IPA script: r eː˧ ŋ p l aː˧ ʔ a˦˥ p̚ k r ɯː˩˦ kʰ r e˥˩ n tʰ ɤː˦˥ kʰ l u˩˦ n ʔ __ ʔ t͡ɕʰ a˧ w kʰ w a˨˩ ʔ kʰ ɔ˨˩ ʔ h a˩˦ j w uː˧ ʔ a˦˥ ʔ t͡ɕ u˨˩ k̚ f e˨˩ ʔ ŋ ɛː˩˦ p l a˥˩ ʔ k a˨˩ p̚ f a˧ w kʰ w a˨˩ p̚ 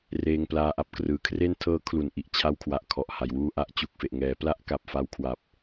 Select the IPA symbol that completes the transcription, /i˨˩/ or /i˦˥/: i˨˩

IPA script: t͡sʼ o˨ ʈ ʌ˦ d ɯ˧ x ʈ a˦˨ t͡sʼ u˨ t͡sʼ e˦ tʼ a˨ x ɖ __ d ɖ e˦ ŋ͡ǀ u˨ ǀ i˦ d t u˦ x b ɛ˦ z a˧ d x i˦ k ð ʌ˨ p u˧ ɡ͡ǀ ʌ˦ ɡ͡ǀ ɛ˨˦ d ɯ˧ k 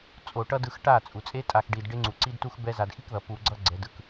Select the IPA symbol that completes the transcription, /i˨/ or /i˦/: i˨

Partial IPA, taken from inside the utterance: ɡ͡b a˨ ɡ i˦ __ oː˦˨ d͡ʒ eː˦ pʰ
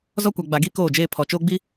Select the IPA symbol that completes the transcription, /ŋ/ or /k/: k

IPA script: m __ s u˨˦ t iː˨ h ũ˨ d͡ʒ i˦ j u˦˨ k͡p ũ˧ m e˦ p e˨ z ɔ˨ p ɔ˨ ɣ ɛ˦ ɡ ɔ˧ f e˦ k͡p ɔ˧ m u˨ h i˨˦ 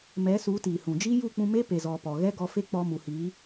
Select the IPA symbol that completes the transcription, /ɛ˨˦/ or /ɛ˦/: ɛ˨˦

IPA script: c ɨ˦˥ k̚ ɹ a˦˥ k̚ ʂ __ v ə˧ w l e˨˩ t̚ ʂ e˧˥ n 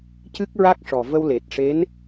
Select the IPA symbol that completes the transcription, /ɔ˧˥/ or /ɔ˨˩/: ɔ˨˩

